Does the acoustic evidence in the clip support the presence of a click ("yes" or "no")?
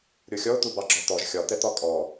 yes